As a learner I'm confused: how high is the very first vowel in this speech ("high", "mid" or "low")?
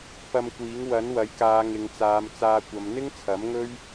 low